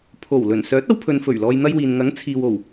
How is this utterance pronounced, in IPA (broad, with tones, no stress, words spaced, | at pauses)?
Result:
pʰo˨˩w lɵ˨˩n sœː˨˥t̚ɐ˧wpʰɵ˨n fɵ˨˩ɥ lɔː˧jn̪ɐ˥jwiː˨n ŋɐ˨˥ŋ t͡sʰiː˨wo˨˩w